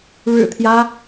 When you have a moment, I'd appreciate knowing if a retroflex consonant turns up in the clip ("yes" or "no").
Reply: yes